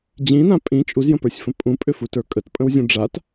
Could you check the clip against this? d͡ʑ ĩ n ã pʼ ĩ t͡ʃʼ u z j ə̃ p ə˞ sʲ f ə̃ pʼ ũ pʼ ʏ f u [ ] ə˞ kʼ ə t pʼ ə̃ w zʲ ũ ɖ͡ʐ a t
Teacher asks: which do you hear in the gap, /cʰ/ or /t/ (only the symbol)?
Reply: t